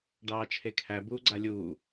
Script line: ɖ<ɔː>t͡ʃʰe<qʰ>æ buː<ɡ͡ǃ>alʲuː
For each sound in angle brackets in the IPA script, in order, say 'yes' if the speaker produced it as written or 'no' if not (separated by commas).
no, no, no